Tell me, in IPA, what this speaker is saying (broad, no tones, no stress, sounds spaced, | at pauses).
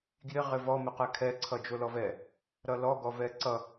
ɡ j ɪ ʁ ɪ v ɔ m ɪ q ɛ kʰ ɛ ǀʰ ʌ d͡ʒ o l ɔ v ɛ | ɾ ʌ l ɔ ɡ ɔ v ɛ ǀ ʌ